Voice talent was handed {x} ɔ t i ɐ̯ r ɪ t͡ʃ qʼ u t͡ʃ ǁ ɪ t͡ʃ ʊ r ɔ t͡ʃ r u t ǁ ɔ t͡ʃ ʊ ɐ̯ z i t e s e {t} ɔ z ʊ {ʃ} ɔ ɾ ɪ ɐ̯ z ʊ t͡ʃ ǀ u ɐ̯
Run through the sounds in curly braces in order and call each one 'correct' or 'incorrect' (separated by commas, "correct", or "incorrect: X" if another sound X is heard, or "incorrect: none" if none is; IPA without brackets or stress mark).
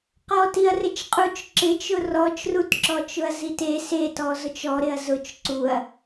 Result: incorrect: q, correct, incorrect: t͡ʃ